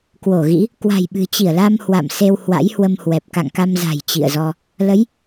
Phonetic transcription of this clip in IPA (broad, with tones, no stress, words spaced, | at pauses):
kwo˧˩ɣḭ˧˥ | kwa̤˨˩jɓɨ̤˨˩t͡ɕi˧˩ə̯la˧m hwa̰˧˨mse˧w hwa̰˧˥jhwə˧mhwɛ˨˩p̚ ka̰˧˨ŋka˧mza̤˨˩j t͡ɕḭ˧˨ə̯zɔ˧ | lə˨˦j